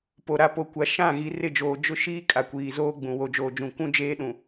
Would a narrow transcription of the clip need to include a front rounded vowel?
no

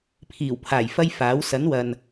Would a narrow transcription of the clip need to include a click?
no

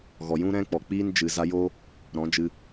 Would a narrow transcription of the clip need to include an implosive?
no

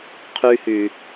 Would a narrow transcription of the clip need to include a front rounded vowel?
yes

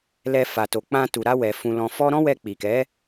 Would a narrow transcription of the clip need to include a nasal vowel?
yes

